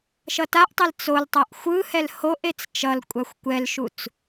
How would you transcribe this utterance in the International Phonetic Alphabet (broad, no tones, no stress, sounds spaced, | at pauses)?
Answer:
ʃ ʌ t a ʔ tˤ ɛ l t͡s o l tˤ a ʔ xʷ ɯ h ɛ l h o ʔ e t͡s t͡ʃ ʌ l kʷʼ a xʷ kʷ ɛ l ʃ u t͡s